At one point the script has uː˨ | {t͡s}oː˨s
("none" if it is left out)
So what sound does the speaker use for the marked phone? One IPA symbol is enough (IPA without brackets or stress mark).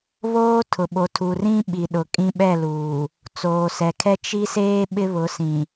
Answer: t͡s